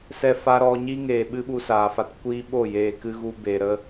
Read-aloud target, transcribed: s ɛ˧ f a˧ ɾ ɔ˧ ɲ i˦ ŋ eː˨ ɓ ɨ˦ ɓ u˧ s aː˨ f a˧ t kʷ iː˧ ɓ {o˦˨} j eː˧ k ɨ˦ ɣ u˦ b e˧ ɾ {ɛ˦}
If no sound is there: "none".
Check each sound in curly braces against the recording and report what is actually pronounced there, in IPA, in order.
o˦˨, ə˦

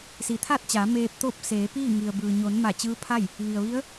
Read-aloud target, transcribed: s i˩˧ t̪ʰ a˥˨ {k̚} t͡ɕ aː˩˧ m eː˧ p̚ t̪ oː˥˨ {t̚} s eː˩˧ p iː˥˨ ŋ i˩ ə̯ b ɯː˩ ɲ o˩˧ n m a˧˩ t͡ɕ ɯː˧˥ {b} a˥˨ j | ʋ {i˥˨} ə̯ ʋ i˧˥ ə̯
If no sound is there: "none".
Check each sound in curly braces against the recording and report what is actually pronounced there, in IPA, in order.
t̚, p̚, pʰ, i˩

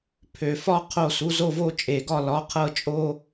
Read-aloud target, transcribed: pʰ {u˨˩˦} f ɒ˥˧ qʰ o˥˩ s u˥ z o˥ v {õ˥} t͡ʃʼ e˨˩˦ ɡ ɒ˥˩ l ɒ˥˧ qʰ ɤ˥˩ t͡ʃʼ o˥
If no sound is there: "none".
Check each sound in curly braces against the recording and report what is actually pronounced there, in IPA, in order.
ø˨˩˦, o˥

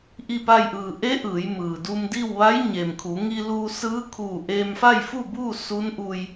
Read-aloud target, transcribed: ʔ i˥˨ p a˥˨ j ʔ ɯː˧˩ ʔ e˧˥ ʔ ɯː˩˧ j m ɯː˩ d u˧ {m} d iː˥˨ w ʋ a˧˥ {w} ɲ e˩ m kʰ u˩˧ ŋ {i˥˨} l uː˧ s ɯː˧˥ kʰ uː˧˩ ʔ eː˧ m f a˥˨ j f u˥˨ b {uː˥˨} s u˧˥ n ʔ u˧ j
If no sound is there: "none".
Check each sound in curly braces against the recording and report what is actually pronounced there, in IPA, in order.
m, j, i˧, uː˥˨

